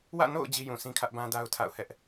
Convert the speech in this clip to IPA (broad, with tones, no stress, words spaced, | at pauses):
wä̰˦˨no̰˦˨ʊ̯ d͡ʑi˦jũ˨ sĩ˦kʰä˦ʔbã˦da˦ʊ̯ tʰa̰˦˨ʊ̯hɛ˦ʔ